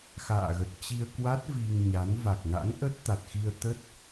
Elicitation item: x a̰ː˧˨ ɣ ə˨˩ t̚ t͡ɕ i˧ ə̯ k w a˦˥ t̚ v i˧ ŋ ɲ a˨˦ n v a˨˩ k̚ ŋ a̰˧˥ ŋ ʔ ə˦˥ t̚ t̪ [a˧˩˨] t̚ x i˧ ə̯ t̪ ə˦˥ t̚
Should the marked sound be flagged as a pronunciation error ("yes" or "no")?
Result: yes